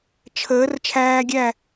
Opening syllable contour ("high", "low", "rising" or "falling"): rising